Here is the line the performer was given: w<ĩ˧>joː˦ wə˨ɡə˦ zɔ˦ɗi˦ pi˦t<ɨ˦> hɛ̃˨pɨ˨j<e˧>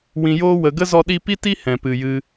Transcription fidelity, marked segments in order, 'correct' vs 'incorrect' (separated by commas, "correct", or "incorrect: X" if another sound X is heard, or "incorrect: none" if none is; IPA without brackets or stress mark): correct, incorrect: i˦, incorrect: ɨ˧